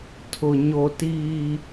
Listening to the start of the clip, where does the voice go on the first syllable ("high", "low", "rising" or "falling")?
low